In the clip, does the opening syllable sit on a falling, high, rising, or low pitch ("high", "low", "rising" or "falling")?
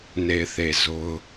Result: low